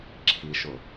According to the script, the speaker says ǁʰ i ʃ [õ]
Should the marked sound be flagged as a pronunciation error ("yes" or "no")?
yes